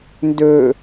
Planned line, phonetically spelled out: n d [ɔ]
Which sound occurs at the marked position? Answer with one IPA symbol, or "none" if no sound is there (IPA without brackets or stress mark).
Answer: ɵ